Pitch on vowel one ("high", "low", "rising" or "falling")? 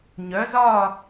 rising